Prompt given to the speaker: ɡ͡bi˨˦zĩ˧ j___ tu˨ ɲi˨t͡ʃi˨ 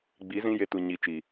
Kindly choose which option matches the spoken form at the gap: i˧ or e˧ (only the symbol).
e˧